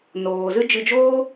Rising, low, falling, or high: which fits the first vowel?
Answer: low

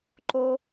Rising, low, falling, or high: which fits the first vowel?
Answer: high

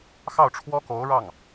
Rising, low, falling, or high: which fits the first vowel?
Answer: falling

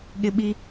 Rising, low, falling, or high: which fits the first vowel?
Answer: high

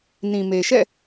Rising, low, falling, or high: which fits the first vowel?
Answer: low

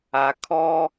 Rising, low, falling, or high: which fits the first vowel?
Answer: low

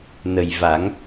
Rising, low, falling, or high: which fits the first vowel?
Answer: low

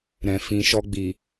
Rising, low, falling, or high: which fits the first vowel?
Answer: low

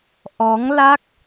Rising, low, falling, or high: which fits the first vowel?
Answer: rising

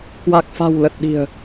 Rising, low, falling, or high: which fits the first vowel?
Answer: low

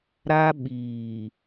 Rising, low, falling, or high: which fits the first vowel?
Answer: high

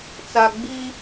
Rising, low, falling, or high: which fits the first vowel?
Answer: low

